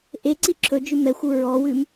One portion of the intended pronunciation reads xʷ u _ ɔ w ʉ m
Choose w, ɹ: ɹ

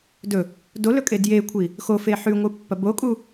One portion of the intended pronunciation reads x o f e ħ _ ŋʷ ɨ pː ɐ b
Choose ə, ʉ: ʉ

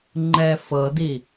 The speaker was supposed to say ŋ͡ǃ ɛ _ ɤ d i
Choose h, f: f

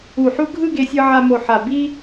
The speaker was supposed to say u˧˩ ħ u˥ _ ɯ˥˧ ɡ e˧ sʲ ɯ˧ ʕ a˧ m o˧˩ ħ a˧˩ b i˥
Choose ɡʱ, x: ɡʱ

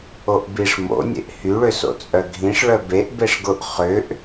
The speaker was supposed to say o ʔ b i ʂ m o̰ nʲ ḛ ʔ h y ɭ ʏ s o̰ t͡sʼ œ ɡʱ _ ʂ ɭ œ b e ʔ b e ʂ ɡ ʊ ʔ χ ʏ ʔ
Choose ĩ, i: ĩ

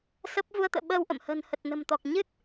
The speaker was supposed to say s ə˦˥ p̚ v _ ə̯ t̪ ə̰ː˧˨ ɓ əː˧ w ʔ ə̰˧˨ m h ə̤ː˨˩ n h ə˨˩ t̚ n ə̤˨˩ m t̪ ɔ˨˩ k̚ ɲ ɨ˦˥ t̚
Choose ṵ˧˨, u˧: u˧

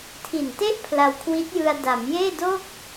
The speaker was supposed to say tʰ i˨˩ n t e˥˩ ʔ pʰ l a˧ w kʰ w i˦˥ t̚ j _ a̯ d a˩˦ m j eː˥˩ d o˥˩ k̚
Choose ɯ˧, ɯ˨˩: ɯ˧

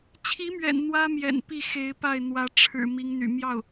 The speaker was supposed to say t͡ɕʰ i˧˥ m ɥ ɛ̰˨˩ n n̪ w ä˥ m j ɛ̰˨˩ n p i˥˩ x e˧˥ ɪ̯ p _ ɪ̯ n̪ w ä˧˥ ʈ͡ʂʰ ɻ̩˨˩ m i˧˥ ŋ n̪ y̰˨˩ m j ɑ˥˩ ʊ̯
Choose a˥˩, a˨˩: a˥˩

